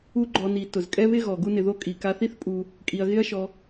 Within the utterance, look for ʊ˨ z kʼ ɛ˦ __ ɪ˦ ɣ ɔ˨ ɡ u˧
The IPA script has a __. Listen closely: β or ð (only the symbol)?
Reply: β